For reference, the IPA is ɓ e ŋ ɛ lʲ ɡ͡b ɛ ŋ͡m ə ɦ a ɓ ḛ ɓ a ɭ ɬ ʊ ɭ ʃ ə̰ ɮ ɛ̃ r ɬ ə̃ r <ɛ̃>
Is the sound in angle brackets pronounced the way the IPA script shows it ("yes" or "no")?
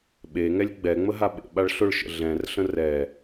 no